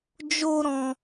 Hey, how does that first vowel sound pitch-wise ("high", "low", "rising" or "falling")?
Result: high